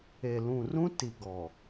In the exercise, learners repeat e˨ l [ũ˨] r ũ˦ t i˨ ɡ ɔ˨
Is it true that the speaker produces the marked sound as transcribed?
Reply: yes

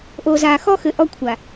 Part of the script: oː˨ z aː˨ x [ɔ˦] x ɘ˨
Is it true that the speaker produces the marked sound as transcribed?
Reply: yes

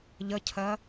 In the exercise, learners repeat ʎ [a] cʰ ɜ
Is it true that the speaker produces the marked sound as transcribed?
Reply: no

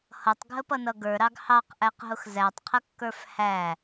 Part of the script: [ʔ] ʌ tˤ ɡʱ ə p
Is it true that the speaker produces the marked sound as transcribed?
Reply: no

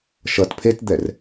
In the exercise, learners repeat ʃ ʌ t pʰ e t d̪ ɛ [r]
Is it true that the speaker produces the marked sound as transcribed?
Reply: yes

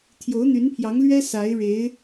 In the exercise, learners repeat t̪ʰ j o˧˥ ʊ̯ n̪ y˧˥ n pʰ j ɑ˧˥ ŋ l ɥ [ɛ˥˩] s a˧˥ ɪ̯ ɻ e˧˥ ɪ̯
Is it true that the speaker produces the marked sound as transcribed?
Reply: no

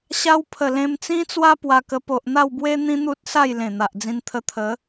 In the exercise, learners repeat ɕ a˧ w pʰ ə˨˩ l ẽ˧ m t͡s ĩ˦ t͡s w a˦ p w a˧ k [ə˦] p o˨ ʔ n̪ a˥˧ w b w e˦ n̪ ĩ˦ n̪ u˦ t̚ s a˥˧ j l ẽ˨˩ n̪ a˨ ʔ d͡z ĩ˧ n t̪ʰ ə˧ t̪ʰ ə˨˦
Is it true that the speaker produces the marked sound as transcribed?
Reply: no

